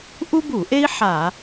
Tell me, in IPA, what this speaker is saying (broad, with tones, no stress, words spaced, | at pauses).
ʔu˥bu˧˩˧ʔe˥i̯ ħa˧˩˧